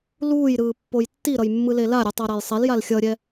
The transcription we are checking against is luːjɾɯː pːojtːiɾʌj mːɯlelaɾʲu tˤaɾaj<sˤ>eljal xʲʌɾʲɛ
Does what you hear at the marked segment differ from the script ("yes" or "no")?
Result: no